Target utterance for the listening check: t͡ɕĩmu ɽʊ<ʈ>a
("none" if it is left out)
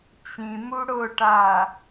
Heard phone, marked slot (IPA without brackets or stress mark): ʈ